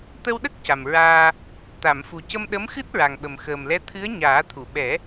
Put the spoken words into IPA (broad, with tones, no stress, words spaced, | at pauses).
t̪ə˧wɗə˦˥k̚ ca˨˩mɹaː˧ | t̪a˨˩˨mfu˨˩ cə˧mɗə˧˥mxɨ˦˥t̚ ɹa˨˩ŋɓə˨˩m xəː˨˩mlɛ˧˥ t̪ʰɨ˧˥ə̯ ɲaː˨˩˦t̪ʰu˨˩˨ɓɛ˨˩˦